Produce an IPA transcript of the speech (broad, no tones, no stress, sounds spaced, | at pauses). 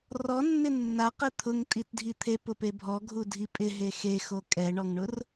r ɔ nː ɪ nː a q e t̪ʰ ʊ ŋ tʼ i t dʱ i t̪ʰ e p ʊ p e bʱ ɔ ɡʱ u dʱ i pʼ ɪ ɦ e x e x o kʼ ɛ ɳ ɔ ŋ ɳ ʊ r